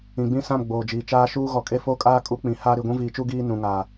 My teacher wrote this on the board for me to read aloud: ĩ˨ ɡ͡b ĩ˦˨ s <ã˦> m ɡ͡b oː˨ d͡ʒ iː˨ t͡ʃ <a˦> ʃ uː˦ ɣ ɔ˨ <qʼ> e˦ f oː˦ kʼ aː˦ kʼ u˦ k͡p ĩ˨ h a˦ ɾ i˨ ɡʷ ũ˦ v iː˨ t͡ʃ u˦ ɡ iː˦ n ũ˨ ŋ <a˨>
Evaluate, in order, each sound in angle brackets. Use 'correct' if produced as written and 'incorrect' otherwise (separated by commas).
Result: incorrect, incorrect, incorrect, incorrect